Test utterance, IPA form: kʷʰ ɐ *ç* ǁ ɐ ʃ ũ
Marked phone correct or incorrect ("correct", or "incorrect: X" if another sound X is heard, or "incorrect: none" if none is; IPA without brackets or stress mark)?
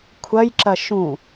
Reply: incorrect: j